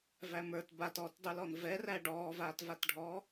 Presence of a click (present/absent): absent